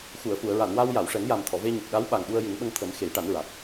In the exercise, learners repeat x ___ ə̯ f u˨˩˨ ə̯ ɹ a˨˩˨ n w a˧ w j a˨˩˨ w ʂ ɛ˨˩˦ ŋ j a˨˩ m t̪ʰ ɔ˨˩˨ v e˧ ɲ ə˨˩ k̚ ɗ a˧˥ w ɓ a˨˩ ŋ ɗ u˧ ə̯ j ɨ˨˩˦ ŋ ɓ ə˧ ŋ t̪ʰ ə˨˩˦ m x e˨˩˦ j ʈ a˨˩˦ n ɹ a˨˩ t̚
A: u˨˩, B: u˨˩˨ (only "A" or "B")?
B